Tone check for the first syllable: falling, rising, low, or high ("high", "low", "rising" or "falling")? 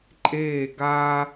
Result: falling